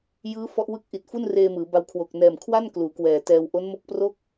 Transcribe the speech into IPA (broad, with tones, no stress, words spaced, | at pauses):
jɯː˦˥ fɔ˦˥ʔwɯ˥˩k̚ ʔi˨˩t̚fu˥˩n reː˧mɯː˩˦ba˧w kʰwo˨˩k̚nɛː˨˩mkʰwa˥˩n kluː˩˦kwɛː˨˩ tɛː˧w ʔo˦˥nmo˦˥k̚pro˥˩k̚